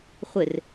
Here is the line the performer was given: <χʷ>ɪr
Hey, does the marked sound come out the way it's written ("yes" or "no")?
yes